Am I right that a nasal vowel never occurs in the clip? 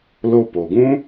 no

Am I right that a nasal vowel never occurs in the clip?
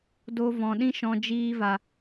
no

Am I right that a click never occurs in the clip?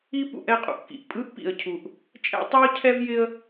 yes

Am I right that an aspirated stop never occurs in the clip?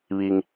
yes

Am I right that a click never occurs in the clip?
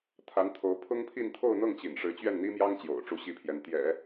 yes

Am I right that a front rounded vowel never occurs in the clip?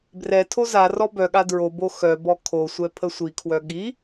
no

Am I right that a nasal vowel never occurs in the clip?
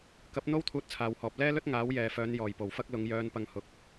yes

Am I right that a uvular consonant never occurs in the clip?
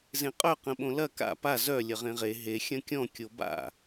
no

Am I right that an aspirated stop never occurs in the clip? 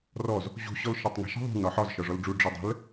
yes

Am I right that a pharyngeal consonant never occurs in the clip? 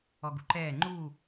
yes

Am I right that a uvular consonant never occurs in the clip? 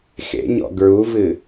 yes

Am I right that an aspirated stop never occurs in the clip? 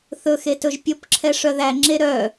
no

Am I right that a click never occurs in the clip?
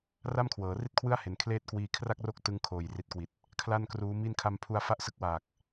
yes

